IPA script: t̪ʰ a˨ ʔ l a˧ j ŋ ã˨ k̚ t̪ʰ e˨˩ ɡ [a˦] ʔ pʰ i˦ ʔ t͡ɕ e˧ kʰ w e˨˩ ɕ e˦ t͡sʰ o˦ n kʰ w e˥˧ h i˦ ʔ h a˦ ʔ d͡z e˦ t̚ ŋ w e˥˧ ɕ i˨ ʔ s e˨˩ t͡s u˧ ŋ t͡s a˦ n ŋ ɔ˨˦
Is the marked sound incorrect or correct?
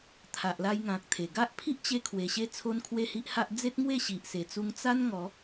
correct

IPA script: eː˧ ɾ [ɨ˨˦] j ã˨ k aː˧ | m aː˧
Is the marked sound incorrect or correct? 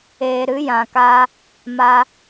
correct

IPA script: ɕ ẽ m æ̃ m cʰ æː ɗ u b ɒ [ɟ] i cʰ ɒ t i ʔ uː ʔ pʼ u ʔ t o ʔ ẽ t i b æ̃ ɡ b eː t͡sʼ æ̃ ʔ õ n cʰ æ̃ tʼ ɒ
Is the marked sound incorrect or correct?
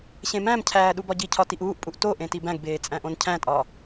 correct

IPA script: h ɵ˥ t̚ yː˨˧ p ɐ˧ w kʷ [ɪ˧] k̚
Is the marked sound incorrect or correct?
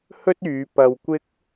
incorrect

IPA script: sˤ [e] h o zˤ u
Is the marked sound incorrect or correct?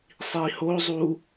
incorrect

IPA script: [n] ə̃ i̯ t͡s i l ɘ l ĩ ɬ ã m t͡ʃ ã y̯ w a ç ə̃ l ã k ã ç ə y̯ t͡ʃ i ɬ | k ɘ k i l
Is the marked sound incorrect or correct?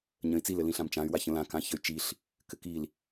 incorrect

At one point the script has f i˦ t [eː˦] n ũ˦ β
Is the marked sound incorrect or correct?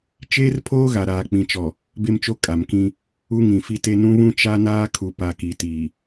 incorrect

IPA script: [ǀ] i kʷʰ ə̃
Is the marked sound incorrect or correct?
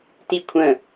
incorrect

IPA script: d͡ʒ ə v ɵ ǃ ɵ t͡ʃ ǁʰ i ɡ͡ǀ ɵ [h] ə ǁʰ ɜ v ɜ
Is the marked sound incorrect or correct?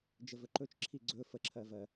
incorrect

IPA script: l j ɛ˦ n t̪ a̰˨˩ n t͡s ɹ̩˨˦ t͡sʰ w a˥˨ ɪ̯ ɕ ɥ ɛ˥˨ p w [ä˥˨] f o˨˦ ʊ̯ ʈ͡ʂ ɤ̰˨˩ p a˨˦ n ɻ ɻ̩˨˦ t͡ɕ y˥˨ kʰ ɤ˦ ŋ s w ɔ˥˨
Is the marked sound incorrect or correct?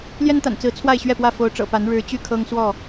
correct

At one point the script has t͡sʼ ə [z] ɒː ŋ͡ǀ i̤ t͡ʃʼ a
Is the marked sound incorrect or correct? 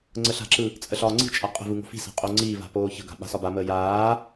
incorrect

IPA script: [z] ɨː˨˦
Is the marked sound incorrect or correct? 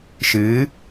incorrect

